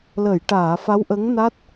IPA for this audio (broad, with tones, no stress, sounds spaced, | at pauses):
l ə˨˩˨ j ʈ aː˨˩˨ f a˧˥ w ʔ ə˧˥ ŋ n a˦˥ t̚